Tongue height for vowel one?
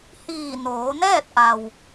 high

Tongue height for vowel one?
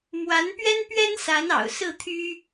low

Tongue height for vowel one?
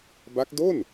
low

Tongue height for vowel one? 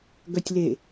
mid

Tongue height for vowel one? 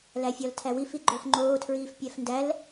low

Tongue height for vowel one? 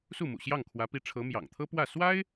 high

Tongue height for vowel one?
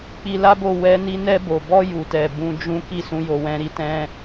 high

